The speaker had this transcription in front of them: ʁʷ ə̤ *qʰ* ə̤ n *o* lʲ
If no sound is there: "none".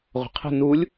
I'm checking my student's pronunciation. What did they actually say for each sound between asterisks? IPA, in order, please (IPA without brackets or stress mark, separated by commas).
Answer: qʰ, u